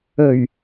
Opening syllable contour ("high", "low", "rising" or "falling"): low